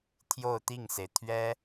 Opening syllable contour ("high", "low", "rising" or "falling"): falling